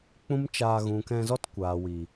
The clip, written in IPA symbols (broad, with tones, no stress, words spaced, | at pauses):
k͡pũ˦mt͡ʃaː˧ ɣũ˨kɛ̃˧zɔ˦t kʷaː˨wi˨